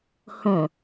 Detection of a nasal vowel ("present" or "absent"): present